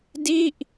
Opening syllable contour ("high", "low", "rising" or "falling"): falling